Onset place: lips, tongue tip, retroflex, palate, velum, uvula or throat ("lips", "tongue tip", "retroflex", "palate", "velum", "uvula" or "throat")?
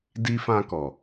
tongue tip